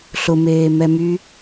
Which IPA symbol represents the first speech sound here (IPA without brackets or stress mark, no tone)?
ɬ